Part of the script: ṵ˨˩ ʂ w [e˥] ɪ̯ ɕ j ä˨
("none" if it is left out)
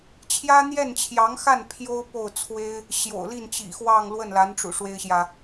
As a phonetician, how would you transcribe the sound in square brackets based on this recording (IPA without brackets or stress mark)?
e˥